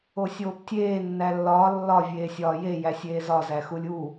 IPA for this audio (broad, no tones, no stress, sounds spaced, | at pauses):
o sʲ oː p tʲ eː nː æ lː ɒː lː ɒ vʲ eː sʲ ɒː j e j æ sʲ eː z ɒ z æ x u lʲ u